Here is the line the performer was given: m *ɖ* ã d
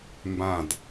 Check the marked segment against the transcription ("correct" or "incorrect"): incorrect